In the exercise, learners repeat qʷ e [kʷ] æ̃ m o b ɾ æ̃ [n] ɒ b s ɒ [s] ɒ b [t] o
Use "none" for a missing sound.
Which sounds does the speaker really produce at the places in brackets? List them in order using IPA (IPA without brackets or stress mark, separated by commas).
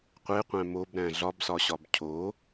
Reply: qʷ, ɮ, ɕ, cʰ